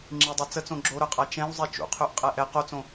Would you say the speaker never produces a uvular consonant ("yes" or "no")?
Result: no